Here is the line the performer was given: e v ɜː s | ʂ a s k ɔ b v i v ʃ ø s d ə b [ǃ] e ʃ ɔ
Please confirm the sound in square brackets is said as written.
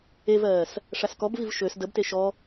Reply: no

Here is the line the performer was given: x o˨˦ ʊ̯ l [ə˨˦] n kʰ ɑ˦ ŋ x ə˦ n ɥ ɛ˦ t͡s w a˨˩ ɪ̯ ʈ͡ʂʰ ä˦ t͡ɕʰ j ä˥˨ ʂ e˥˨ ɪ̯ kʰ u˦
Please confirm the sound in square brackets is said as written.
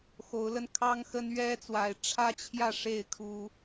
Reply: no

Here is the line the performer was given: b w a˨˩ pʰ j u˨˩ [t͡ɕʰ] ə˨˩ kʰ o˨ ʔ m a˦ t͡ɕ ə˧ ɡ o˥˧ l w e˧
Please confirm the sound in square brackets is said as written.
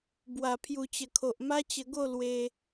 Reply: no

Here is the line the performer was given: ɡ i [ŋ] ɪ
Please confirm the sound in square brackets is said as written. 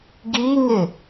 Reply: yes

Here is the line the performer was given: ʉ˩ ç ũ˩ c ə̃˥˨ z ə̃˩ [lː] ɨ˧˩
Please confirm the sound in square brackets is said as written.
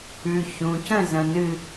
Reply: no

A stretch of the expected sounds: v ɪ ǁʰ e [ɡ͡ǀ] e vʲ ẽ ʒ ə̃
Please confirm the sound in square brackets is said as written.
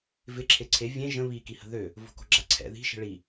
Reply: no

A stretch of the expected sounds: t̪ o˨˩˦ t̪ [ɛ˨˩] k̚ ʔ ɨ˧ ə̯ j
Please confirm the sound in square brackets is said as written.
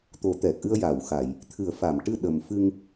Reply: yes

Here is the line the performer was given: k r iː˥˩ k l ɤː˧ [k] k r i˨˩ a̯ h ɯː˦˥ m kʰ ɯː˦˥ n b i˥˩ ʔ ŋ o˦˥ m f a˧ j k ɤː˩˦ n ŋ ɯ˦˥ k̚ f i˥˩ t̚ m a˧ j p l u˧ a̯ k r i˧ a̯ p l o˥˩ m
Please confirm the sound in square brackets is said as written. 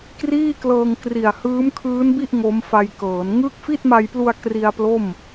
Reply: no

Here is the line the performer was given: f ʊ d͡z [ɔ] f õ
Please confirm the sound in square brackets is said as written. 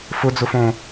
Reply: no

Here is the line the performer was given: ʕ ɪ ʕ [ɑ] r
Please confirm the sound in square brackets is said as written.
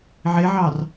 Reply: yes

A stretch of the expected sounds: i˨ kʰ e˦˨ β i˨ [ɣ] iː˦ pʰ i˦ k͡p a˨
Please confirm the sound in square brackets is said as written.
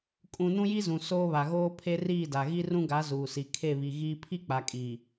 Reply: yes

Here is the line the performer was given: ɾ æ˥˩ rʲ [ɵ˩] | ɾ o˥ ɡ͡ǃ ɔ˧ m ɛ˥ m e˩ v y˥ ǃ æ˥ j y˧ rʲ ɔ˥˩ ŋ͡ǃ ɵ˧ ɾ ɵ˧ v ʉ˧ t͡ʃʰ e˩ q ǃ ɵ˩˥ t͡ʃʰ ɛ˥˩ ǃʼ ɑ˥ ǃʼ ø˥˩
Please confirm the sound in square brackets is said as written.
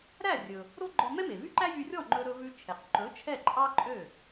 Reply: yes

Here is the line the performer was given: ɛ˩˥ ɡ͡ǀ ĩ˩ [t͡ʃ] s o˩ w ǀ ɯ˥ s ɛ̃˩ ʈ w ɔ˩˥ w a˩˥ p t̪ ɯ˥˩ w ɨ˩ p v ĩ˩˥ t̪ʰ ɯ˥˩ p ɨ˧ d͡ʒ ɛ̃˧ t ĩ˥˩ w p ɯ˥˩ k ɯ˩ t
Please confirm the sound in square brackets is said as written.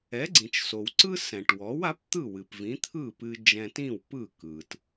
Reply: yes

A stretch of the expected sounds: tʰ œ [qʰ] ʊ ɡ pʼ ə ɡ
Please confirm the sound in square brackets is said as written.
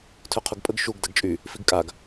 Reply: yes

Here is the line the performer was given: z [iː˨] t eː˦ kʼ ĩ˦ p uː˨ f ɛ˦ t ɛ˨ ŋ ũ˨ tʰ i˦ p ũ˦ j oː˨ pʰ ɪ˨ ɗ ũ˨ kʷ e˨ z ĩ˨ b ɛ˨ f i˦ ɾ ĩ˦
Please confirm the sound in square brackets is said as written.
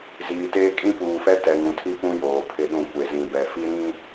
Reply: yes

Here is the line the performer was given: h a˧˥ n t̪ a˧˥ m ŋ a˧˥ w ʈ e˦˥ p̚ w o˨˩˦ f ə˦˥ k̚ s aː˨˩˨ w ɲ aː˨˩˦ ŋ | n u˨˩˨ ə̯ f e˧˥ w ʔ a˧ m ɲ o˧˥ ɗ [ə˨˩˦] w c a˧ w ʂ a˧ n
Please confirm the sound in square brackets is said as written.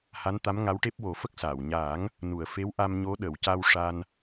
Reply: no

